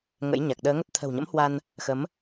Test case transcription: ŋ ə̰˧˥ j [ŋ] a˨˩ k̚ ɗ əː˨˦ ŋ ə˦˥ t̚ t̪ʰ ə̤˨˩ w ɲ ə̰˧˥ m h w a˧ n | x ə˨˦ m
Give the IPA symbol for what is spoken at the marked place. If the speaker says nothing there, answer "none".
ɲ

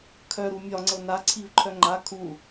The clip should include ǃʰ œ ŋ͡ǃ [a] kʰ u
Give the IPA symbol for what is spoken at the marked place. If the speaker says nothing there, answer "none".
a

